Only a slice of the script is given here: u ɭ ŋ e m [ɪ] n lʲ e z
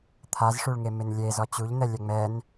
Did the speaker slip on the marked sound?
no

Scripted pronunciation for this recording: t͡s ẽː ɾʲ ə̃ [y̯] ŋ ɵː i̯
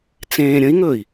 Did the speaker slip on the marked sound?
yes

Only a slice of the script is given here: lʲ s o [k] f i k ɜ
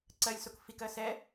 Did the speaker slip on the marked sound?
no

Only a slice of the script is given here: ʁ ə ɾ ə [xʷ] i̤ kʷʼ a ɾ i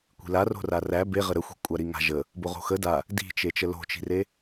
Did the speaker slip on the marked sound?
no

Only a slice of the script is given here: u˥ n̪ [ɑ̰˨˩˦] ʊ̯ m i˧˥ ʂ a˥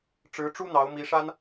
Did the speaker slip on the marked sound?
yes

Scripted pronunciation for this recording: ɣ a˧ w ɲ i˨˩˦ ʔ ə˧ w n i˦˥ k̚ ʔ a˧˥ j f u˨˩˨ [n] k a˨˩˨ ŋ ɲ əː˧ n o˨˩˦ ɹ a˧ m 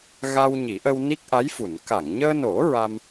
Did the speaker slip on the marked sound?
no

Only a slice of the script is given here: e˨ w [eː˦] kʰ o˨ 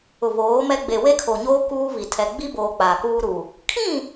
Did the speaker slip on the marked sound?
yes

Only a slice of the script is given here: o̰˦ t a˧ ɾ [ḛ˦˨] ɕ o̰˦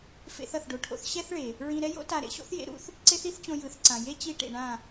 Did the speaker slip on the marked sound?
yes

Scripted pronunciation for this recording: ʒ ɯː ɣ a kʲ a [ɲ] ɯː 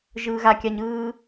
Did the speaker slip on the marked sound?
no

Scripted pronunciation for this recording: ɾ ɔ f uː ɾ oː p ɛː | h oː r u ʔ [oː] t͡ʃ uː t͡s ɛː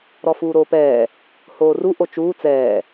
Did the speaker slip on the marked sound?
yes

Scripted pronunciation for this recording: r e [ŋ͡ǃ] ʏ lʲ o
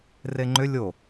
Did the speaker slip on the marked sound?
no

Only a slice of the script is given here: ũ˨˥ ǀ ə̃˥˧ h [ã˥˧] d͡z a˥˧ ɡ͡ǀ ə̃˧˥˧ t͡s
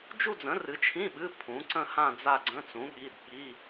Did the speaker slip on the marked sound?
no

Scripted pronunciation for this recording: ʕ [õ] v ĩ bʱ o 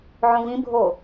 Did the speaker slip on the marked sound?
no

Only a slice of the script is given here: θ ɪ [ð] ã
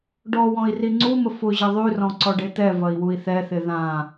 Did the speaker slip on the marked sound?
no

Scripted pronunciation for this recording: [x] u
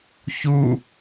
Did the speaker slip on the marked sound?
yes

